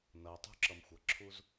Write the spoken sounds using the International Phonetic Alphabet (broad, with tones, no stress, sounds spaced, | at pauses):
n ʌ˩ o̯ tˤ ṳ˧ ǁ ʌ˩ m xʷ ʌ˩ ǁʰ u˧ z